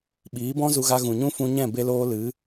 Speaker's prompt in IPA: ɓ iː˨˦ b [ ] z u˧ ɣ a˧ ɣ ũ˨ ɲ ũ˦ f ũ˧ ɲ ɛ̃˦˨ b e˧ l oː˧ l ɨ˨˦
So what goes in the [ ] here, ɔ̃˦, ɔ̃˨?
ɔ̃˦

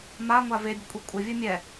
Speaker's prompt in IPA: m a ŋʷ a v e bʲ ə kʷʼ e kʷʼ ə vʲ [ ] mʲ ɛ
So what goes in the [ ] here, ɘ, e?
ɘ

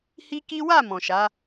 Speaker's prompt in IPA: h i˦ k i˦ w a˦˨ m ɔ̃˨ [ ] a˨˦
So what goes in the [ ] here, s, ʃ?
ʃ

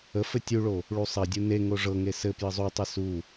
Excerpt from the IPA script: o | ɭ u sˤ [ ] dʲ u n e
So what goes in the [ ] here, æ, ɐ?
ɐ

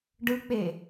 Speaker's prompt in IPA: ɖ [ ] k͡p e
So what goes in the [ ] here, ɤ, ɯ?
ɯ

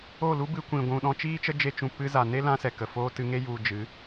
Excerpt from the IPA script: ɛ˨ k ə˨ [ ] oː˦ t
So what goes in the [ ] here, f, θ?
f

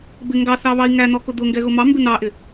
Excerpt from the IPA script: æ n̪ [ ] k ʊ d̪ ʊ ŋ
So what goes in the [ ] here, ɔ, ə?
ɔ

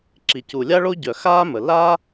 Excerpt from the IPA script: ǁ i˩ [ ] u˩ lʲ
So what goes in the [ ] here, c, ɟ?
c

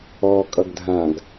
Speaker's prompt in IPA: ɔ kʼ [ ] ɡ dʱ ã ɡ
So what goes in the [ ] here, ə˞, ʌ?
ʌ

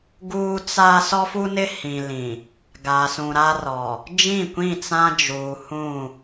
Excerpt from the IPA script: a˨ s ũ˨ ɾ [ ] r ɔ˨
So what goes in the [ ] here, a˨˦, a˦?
a˦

